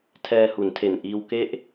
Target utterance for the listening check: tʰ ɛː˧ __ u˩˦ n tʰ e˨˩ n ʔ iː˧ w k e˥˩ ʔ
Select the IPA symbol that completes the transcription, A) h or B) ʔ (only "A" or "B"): A